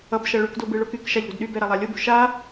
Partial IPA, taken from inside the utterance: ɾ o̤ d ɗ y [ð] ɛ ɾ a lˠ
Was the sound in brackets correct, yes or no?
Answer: no